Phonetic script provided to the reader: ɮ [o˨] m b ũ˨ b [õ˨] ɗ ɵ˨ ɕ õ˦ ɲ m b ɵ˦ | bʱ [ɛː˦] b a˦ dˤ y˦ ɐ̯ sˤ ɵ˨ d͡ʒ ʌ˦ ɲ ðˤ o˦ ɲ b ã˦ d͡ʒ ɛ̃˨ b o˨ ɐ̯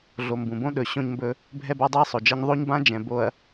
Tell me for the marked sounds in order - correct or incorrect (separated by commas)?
correct, incorrect, incorrect